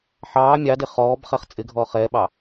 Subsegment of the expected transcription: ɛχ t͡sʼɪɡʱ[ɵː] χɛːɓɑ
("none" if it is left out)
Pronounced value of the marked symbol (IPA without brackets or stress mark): ɔː